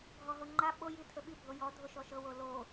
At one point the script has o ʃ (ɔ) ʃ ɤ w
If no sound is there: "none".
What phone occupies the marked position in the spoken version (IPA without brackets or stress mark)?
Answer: ɔ